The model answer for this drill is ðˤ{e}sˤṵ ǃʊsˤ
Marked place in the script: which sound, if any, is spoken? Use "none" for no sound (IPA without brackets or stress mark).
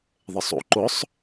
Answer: e